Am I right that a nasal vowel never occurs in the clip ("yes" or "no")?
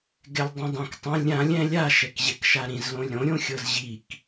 no